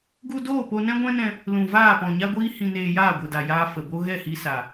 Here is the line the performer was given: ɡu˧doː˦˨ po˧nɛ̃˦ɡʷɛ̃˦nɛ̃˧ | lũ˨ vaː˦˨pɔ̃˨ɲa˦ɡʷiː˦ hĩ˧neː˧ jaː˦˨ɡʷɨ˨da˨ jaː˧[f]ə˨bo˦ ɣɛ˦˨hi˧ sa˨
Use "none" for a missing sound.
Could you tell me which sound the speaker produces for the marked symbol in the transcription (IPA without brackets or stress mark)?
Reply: f